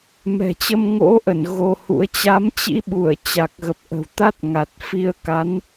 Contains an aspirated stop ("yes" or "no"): no